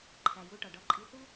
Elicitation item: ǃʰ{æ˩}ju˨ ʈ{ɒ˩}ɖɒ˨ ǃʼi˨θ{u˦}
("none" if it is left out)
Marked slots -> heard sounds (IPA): æ˩, ɒ˩, u˦

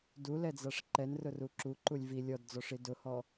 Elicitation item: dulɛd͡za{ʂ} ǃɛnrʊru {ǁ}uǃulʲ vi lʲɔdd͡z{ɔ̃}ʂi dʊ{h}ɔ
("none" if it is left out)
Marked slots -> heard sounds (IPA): ʂ, ǁ, ɔ, h

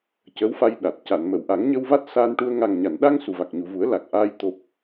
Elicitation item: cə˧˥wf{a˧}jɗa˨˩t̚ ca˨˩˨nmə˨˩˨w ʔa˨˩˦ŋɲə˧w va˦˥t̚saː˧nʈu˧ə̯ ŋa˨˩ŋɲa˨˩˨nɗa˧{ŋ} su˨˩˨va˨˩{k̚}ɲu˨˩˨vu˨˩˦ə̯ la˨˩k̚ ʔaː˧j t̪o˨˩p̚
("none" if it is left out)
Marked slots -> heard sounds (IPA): a˧, ŋ, k̚

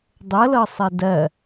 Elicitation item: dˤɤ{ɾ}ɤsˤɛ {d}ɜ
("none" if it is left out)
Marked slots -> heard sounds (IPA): l, d

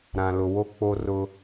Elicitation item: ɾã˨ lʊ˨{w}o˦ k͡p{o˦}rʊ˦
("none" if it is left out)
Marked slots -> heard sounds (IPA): w, o˦

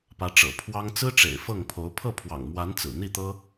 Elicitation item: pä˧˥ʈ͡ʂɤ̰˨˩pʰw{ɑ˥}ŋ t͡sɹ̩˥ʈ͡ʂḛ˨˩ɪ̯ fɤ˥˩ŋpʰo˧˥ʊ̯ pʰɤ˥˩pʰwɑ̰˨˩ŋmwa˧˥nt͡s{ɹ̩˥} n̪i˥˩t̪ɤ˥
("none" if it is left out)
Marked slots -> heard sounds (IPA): ɑ˥, ɹ̩˨˩

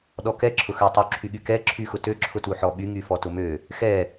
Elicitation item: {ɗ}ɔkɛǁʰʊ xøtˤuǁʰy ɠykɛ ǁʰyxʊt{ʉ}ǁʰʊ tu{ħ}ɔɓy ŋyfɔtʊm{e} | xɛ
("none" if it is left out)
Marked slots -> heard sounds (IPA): ɗ, ø, ħ, ø

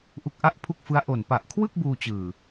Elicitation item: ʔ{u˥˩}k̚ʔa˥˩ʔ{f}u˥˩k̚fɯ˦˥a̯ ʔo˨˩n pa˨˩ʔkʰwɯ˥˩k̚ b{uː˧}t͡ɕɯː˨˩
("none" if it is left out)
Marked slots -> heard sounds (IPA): u˦˥, pʰ, uː˧

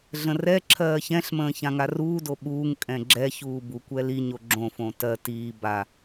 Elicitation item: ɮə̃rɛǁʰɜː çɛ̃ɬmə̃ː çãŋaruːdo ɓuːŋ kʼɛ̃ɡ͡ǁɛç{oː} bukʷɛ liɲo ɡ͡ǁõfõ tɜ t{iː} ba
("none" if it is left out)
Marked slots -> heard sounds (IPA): uː, iː

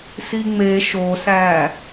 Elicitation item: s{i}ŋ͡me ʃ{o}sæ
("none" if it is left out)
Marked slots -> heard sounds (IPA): i, o

